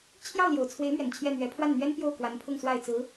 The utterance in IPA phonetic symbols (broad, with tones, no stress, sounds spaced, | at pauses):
t͡ɕʰ j ɑ˥˩ ʊ̯ l j o˨˩ ʊ̯ t͡sʰ w e˧˥ ɪ̯ m ɥ ɛ˨˩ n t͡ɕʰ j ɛ˥˩ n̪ ɥ ɛ˧˥ pʰ w a˥˩ n n̪ ɥ ɛ˥ n p j o˥˩ ʊ̯ k w a˧˥ n pʰ ʊ˥˧ ŋ s w a˥˩ ɪ̯ t͡s ɹ̩˧˥